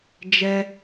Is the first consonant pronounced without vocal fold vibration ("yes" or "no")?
no